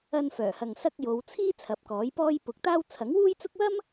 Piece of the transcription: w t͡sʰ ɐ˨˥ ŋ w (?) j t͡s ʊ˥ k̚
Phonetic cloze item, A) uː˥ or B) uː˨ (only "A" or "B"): A